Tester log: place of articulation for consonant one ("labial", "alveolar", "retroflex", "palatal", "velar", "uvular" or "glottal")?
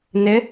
alveolar